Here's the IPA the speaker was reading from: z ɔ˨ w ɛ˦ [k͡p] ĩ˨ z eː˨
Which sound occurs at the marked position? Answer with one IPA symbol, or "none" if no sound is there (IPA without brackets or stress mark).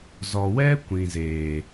kʷ